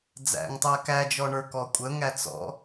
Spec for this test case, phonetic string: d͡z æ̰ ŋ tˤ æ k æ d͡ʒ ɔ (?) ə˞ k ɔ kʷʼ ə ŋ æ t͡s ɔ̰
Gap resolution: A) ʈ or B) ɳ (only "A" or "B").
B